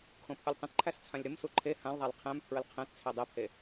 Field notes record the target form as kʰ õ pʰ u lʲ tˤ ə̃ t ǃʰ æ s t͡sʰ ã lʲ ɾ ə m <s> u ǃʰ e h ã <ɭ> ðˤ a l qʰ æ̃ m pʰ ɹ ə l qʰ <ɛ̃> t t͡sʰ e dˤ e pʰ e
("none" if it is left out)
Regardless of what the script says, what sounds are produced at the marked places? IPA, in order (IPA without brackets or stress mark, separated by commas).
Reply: s, l, æ̃